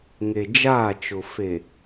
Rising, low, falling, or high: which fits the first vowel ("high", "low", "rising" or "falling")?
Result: low